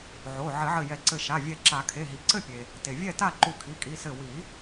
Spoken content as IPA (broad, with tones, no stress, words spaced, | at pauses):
ʕo˩˧˩ ʕɘ˨˩˦ʕɘ˧˩ jɛ˨˩˦ǀɘ˧˩ ʃa˩˧˩vʲɛ˧˩ǁa˨˩˦kʰe˩˧˩ ɦi˩ǀɘ˥˨pʲe˩ | te˩vʲɛ˥˨ta˥˨ ǃu˧˩kʰi˩˧˩kʼi˩˧˩sɘ˧˩ wi˨˩˦